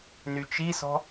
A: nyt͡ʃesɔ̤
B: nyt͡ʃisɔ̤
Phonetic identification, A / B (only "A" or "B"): B